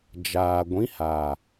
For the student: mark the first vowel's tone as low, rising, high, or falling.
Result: low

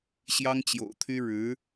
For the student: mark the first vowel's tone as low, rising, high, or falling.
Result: high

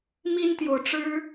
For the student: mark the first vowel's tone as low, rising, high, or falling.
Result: high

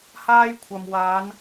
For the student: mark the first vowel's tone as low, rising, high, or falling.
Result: high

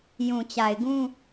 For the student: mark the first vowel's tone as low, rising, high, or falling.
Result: low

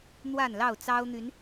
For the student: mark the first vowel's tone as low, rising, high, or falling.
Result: falling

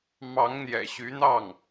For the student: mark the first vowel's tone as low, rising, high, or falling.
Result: rising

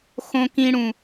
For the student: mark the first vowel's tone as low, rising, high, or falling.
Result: low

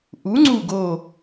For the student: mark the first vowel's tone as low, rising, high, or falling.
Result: rising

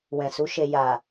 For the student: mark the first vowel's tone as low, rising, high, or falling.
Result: low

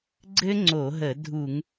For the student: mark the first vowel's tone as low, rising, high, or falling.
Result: high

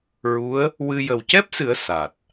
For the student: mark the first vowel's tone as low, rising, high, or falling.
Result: rising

